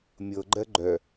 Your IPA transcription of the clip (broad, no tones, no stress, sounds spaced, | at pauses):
mʲ ɤ ɡ͡ǃ ɜ ɡ͡ǃ œ